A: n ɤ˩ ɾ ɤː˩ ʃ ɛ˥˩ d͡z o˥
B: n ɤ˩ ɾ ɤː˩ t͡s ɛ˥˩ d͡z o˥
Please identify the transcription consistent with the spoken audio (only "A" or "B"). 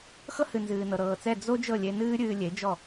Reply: B